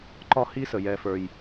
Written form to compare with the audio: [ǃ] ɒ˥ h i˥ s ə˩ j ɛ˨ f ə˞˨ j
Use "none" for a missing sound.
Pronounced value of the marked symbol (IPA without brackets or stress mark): ǃ